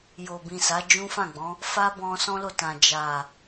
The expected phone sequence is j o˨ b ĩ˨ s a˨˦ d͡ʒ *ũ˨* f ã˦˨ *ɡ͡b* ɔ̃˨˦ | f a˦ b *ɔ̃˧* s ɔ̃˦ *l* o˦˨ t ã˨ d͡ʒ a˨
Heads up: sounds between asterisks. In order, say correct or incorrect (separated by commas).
incorrect, correct, correct, correct